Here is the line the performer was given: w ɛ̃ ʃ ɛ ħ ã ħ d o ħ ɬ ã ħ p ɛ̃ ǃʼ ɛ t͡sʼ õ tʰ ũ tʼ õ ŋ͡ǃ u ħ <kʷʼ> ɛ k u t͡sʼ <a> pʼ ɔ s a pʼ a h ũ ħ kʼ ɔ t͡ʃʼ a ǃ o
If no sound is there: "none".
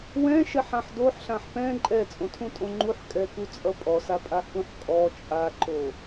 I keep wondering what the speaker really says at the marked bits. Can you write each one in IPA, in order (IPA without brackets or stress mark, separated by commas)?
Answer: kʼ, ʌ